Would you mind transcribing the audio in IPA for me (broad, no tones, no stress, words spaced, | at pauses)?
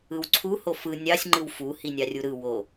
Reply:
ɯwǀʰu hofɯ nʲɑsʲ ŋ͡ǃɯwfu hinʲɑrʲuɾɯ wo